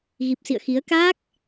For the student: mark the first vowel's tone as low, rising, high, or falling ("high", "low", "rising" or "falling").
low